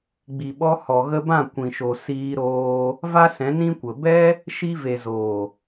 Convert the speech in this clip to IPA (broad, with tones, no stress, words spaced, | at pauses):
ɡ͡bi˨ɓɔ˧hɔ˨ ɣə˧bã˦˨ kʷĩ˨ʃo˨ siː˧ɾoː˧ | va˦sɛ̃˨˦ nĩ˧kʷə˨bɛ˦ | ʃi˧ve˨zoː˨